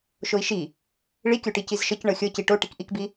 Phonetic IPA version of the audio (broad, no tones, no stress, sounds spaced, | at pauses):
ʃ o i̯ ʃ i | ɭ i kʲ o ʈ i c i z ʃ ɤ c ɳ ɤ xʲ ɤ c i ʈ o ʈ i k ʔ i k b i